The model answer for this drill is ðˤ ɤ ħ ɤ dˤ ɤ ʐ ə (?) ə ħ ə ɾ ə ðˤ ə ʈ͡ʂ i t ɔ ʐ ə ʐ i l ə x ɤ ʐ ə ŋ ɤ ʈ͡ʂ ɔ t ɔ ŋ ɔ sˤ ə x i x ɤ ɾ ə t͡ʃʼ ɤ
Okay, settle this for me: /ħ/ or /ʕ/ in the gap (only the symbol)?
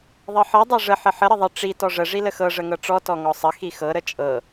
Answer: ħ